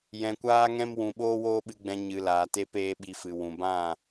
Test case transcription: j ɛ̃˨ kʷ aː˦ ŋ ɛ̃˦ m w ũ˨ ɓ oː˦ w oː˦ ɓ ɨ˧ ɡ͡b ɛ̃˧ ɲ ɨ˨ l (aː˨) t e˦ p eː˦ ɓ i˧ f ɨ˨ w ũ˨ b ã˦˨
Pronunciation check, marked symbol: correct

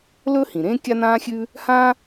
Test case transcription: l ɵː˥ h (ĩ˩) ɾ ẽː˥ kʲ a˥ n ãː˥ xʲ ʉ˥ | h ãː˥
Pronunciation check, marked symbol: correct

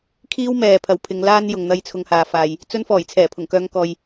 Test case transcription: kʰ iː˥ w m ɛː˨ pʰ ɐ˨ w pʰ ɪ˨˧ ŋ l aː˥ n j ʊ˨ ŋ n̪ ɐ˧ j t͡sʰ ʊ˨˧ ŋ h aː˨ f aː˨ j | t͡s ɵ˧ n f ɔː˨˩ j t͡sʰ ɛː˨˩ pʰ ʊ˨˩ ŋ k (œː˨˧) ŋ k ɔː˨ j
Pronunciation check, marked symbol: correct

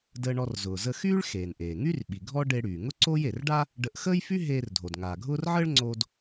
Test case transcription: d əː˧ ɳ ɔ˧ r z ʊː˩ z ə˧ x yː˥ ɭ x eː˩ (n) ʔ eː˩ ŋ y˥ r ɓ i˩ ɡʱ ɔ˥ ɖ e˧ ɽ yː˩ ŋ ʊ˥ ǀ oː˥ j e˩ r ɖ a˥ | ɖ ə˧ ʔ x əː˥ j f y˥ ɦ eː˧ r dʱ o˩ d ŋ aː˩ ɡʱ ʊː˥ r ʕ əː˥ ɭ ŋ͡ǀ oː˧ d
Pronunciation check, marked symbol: correct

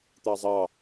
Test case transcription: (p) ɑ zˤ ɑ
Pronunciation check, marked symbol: incorrect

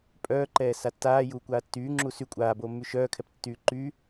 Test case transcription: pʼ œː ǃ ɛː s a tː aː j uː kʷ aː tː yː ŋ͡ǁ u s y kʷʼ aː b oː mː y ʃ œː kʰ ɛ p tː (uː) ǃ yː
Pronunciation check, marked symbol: incorrect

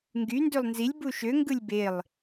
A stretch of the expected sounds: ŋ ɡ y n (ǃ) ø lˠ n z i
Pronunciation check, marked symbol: incorrect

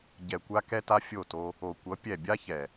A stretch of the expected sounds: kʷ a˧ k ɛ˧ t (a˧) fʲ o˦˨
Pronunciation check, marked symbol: correct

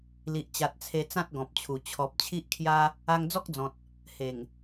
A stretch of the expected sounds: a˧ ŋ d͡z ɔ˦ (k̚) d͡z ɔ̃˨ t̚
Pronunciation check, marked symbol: correct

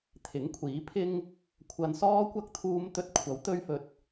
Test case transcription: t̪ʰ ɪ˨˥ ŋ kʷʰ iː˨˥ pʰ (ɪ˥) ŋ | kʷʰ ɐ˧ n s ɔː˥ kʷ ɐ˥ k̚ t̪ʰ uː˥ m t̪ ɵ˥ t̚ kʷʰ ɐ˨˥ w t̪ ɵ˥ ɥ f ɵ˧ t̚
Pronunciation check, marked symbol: correct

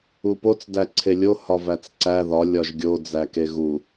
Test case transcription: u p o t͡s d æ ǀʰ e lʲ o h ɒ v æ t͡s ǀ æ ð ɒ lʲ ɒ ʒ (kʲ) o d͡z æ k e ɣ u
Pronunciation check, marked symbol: incorrect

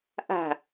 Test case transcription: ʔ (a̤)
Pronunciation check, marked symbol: correct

